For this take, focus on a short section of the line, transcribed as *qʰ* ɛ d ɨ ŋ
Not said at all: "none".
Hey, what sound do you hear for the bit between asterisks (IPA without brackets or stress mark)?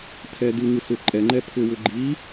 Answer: tʰ